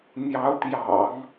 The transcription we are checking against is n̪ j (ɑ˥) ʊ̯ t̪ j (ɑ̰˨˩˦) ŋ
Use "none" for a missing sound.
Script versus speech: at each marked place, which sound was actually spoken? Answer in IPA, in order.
ɑ˧˥, ɑ̰˨˩˦

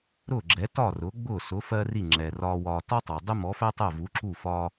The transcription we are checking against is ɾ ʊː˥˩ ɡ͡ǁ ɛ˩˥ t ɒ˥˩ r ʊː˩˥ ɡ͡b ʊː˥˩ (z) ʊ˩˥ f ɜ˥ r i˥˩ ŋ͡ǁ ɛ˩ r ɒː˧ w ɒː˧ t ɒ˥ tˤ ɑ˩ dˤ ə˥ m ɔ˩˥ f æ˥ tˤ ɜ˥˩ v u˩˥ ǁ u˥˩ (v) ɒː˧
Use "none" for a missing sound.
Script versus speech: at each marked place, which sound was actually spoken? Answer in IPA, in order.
s, f

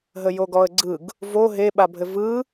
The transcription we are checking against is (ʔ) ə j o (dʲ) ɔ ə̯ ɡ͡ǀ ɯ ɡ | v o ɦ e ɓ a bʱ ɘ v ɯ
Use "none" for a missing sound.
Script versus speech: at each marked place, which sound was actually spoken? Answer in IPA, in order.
ɦ, ɡ

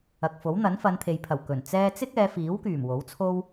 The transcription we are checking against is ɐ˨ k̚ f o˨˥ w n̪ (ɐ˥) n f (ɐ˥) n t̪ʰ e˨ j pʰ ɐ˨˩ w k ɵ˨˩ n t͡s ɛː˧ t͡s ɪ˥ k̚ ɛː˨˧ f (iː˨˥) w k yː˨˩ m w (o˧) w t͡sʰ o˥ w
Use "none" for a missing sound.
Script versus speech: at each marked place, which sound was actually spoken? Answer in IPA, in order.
ɐ˨˥, ɐ˨˧, iː˨˥, o˨˥

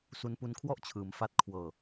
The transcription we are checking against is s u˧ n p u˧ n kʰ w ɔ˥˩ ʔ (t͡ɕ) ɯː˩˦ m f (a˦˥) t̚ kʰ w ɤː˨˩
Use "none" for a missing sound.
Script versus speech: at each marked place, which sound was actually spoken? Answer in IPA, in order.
t͡ɕʰ, a˦˥

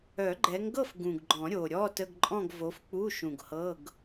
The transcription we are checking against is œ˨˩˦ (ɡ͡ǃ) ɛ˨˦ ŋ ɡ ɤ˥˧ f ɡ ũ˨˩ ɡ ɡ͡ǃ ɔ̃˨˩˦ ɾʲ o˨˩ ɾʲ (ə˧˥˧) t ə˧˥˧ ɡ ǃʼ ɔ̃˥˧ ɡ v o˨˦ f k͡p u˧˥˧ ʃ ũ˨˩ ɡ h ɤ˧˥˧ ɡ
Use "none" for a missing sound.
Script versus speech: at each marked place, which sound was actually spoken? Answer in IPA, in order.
ɡ͡ǃ, ɔ˧˥˧

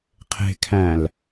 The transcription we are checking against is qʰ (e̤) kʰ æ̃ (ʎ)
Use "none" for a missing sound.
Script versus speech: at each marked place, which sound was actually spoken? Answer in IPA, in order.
e̤, l

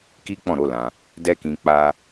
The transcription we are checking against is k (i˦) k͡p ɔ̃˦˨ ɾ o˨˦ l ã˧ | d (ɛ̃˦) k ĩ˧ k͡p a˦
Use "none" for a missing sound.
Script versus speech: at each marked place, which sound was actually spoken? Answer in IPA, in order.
i˦, ɛ˦

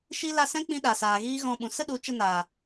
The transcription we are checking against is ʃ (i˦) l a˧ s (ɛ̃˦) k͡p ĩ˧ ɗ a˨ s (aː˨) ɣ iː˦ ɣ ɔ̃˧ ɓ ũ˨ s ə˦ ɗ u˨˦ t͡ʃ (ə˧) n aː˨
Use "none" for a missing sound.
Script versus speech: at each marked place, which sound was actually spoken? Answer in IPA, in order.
i˦, ɛ̃˦, aː˨, ə˧

